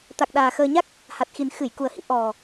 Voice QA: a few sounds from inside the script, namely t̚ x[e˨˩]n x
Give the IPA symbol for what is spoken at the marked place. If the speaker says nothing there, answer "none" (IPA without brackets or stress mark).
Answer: i˨˩